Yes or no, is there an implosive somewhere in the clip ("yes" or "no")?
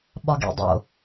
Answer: yes